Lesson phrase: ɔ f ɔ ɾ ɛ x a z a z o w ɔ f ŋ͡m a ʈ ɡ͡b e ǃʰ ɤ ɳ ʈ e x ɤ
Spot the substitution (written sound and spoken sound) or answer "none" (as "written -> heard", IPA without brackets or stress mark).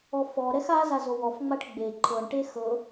none